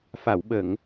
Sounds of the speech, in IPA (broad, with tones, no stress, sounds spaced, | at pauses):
f a˨˩˨ w ɓ ə˨˩˨ ŋ